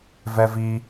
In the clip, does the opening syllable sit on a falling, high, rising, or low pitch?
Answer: low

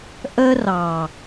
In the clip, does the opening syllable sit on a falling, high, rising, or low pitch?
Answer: high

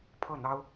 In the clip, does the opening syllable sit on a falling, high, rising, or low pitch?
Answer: falling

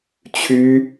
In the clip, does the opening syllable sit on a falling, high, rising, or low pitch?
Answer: high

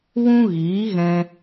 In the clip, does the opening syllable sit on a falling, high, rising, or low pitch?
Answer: high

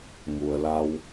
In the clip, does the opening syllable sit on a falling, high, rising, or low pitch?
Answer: low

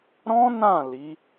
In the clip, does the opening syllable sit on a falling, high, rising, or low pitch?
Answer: high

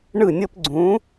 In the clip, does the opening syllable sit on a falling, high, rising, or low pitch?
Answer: falling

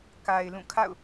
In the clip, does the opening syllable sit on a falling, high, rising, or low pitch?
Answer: low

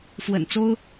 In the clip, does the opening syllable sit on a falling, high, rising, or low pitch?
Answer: low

